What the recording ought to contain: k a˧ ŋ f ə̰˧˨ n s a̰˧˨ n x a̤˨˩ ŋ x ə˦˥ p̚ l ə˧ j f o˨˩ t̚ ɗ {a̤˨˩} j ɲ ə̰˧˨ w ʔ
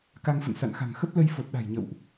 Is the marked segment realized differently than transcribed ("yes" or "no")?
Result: no